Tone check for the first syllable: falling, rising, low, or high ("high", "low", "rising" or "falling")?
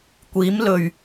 rising